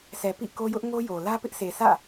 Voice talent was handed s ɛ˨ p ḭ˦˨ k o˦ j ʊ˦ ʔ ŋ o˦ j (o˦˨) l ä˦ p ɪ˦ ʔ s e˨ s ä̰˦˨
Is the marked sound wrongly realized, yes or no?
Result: yes